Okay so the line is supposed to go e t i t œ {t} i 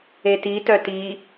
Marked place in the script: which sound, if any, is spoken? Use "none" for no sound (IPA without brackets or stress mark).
t